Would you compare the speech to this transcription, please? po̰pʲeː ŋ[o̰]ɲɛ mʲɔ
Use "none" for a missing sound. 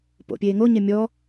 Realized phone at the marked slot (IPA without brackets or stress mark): o